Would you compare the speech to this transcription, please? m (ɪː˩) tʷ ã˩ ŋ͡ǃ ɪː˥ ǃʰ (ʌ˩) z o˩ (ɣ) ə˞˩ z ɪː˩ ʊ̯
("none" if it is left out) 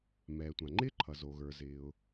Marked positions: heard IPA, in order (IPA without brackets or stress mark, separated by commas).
ɛː˩, ʌ˩, ɣ